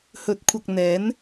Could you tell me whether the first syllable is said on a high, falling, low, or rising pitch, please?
rising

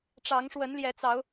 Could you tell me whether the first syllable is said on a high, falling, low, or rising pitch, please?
rising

